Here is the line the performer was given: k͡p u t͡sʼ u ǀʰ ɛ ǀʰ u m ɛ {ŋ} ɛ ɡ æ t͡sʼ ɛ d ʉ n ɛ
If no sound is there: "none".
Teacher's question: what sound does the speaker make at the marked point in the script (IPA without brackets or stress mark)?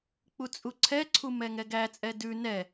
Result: ŋ